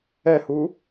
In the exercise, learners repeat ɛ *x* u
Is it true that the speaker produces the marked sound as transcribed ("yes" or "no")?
no